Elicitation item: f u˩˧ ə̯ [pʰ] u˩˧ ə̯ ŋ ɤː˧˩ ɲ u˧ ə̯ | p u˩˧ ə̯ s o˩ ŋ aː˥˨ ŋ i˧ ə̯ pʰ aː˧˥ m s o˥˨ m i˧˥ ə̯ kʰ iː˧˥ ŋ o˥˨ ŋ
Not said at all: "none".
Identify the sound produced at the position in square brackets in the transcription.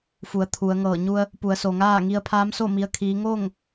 t̪ʰ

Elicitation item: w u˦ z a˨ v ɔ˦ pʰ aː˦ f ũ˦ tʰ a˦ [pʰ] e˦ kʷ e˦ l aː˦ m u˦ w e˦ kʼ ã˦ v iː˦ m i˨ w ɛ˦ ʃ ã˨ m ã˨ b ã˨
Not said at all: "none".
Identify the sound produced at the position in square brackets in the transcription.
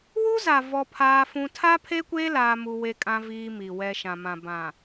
pʰ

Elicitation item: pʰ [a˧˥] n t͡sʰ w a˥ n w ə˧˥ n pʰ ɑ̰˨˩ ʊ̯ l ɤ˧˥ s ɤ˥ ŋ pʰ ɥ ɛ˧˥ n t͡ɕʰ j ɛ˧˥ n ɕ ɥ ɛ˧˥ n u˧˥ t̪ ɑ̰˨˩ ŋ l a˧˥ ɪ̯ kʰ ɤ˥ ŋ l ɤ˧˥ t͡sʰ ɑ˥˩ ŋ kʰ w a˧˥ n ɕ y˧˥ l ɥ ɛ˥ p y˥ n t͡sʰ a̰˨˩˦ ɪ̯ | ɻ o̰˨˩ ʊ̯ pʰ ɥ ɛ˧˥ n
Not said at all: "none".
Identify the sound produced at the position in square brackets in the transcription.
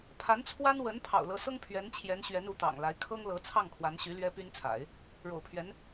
a˧˥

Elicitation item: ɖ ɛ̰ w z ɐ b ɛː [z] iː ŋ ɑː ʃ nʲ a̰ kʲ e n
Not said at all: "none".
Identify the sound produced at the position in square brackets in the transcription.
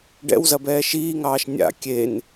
ʃ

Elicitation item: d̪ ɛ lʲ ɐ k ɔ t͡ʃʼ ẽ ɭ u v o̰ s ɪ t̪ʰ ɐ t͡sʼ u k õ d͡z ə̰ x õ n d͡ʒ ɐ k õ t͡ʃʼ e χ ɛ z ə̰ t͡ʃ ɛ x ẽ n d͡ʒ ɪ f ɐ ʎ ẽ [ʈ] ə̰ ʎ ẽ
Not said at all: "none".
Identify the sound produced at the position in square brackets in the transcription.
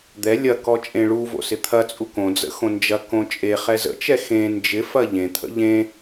t̪ʰ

